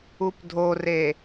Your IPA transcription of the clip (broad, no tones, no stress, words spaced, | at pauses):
updʱore